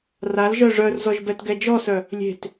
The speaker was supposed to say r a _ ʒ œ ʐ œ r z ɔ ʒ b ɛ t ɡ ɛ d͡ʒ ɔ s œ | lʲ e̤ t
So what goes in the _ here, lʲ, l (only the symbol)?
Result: l